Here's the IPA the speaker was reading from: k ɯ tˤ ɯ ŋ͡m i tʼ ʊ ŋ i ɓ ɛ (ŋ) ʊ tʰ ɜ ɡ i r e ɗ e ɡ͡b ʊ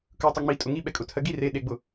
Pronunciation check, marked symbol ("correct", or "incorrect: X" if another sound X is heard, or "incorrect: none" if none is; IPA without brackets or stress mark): incorrect: kʼ